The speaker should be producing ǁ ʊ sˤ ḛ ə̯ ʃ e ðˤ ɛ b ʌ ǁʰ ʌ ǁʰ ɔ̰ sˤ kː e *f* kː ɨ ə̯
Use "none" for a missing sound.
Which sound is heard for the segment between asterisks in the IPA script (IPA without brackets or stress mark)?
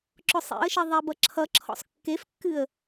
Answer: f